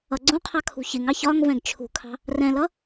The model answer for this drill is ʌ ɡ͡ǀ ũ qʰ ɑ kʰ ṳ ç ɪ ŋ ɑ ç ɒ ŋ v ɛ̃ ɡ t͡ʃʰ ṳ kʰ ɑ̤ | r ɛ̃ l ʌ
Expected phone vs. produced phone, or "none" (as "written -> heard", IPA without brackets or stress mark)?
none